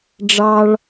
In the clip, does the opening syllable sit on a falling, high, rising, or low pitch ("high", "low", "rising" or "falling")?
high